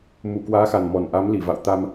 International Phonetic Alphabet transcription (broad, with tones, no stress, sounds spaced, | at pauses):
m u˧˩ k w aː˨˦ x a˨˩ n m ɔ˨˩ n ʔ a˨˦ m l i˧˩ v a̰˧˨ w t̪ a˧ m